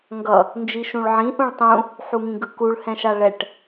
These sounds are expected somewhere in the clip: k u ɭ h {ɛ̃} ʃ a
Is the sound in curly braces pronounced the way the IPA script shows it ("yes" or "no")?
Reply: yes